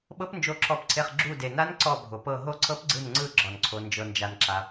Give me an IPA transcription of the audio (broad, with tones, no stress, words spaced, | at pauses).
ɓɤ˧˥pnd͡ʒo˧˩ǁʰɔ˧˩pǀʰe˧˩χ ɡ͡ǁu˧˩de˩na˧˥n ǀɔ˧˩bʱo˩pɤ˧˩ ɦo˧˥ǀʰɤ˧˥p ɡ͡ǀɯ˧˩nŋ͡ǀɯ˧˩ ɡ͡ǁɔ˩nǀʰo˩ nd͡ʒɤ˩nd͡ʒa˩nǁa˩